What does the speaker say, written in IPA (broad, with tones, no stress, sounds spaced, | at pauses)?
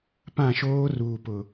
p ã˦˨ ʃ oː˦ r uː˨ p ʊ˨